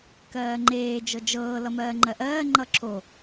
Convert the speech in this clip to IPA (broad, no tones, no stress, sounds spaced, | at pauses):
k ɜː ŋ͡ǃ eː d͡ʒ ɤ d͡ʒ ɤː l ʌ m ɜː ŋ͡ǃ ɜ ʔ ɜː ŋ͡ǃ ʌ ǁʰ o